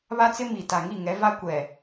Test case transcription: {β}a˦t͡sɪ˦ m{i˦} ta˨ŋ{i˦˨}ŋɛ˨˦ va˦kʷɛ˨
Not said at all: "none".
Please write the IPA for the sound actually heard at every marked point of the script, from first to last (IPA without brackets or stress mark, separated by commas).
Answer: β, i˨, i˦˨